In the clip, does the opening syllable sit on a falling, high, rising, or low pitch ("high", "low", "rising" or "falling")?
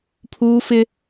high